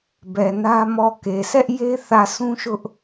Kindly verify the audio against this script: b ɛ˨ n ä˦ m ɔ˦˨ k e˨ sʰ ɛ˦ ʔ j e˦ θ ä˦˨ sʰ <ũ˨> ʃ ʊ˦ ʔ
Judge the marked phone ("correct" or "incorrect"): incorrect